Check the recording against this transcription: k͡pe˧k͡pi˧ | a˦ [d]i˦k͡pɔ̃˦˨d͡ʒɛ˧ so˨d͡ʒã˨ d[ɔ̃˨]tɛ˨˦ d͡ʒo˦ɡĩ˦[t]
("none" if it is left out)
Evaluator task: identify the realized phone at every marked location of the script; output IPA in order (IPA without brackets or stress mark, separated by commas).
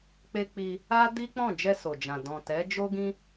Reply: d, ɔ̃˨, none